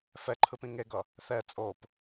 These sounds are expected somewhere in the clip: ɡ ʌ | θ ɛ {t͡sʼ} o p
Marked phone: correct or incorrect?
correct